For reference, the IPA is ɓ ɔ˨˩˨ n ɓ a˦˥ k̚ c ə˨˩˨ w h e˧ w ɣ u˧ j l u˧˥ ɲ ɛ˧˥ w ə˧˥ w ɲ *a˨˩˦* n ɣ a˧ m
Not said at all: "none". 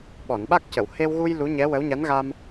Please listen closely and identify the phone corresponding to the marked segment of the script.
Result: a˧˥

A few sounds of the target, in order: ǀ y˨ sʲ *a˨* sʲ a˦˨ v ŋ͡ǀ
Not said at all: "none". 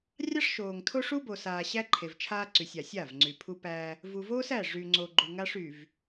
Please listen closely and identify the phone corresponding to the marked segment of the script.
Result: a˨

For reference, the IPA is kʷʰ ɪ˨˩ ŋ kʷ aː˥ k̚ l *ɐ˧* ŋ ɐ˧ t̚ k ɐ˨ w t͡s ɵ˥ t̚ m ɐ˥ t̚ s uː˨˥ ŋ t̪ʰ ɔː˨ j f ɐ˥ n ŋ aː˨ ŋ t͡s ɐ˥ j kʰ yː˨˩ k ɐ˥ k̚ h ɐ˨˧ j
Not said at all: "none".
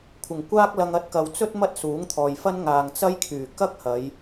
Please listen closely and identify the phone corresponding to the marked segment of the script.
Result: ɐ˧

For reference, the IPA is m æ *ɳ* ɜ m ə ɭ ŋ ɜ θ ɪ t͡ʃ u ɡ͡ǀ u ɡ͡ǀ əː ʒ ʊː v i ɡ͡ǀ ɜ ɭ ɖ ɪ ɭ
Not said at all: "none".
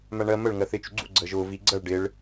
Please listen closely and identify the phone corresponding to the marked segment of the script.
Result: ɳ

